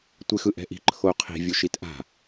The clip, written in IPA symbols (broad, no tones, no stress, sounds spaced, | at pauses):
tʷ e x ɯ ʔ ɛ̤ ʔ i̤ ǃʰ o qʰ i̤ vʲ u ʃ i t ʔ a̤